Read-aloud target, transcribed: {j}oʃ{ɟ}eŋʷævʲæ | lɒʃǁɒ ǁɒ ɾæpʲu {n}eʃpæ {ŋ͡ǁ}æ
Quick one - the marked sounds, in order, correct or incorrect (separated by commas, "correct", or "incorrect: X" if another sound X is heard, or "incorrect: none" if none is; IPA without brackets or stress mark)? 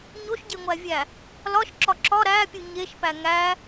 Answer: incorrect: ɲ, correct, incorrect: ɲ, incorrect: ŋ